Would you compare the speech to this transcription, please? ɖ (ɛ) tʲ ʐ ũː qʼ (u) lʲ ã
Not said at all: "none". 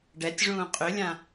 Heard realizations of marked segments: ɛ, ʏ

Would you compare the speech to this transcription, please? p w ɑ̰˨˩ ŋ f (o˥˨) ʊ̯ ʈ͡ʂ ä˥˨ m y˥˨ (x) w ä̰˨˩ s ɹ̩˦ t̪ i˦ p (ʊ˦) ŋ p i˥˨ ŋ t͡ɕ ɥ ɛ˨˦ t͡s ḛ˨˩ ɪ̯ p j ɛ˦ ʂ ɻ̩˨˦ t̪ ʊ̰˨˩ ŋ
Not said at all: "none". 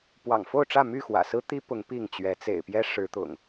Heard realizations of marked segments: o˥˨, x, ʊ˨˦

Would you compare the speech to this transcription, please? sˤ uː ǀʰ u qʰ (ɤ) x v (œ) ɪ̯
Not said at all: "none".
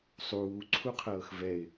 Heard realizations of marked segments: ɤː, ɛ

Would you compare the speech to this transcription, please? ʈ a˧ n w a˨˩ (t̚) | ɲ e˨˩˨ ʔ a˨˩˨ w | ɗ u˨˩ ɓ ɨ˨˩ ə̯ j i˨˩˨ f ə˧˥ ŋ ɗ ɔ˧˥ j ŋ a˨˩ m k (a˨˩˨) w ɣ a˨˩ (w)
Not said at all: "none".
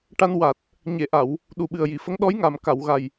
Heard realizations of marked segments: t̚, a˨˩˨, j

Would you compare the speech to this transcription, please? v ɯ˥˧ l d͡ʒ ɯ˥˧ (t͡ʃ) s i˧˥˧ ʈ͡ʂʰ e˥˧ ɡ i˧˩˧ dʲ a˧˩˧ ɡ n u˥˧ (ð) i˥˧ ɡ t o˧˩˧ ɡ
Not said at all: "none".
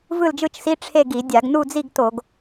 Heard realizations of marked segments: t͡ʃ, d͡z

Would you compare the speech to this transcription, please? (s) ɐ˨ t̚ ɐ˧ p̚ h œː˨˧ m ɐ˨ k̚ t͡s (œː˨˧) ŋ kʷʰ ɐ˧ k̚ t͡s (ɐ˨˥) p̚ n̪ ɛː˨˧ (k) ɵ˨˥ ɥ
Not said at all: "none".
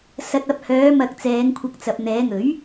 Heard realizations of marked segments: s, ɛː˨˧, ɐ˨, ŋ

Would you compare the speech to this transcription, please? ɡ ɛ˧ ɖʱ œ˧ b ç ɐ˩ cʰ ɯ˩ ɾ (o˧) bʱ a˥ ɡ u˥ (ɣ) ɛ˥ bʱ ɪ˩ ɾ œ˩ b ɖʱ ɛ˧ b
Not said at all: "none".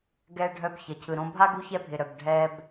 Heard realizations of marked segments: õ˧, ç

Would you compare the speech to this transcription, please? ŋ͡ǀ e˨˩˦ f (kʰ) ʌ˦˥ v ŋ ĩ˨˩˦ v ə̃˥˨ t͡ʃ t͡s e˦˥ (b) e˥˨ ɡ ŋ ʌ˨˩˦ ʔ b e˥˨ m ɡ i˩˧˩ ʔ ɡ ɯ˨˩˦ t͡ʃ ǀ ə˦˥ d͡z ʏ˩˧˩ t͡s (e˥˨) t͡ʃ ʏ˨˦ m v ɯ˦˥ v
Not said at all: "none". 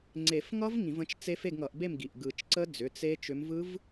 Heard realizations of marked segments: ŋ, f, e˦˥

